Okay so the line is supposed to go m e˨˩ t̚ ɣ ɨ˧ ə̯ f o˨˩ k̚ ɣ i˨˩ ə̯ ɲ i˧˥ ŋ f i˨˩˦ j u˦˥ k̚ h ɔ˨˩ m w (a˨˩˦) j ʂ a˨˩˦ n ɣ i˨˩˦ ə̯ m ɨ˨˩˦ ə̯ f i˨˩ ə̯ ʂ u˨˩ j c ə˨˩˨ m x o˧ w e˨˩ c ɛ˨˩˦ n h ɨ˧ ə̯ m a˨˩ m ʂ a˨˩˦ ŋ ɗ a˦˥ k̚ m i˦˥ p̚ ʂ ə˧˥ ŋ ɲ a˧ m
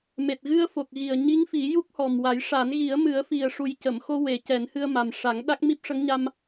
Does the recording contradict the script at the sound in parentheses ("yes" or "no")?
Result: no